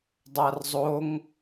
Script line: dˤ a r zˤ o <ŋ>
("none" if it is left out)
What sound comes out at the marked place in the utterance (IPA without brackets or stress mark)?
ŋ